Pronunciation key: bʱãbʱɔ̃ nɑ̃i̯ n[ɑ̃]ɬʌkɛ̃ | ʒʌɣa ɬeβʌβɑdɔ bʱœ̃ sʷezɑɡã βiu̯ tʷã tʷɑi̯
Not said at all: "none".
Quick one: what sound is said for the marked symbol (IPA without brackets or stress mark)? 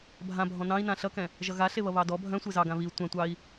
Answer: ã